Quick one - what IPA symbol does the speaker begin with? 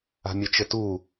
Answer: a̤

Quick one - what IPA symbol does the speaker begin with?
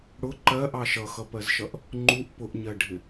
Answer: ɽ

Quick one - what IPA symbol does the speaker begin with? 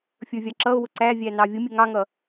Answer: fʲ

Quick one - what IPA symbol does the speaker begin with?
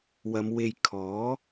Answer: w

